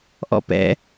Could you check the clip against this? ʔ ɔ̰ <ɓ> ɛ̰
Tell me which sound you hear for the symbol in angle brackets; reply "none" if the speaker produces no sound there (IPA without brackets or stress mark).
p